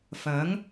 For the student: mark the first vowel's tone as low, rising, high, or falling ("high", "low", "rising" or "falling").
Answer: rising